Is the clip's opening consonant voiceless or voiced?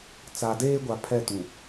voiceless